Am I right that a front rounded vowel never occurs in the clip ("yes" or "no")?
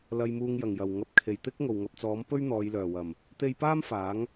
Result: no